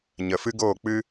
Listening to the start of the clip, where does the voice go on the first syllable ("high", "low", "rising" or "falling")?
low